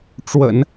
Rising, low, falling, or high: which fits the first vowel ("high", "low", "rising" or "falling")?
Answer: low